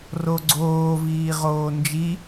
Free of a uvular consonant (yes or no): no